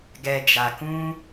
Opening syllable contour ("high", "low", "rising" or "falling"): low